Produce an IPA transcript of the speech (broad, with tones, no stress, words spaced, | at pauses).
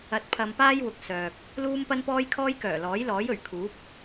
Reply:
ɐ˨t̚ pʰɐ˧mpaː˥jwʊ˨k̚ sœː˨k̚ | luː˥mpɐ˥npɔː˥jkʰɔː˥j kœː˨˩lɔː˨˥jlɔː˨˥jɵ˨˩ɥ kʰuː˨˥p̚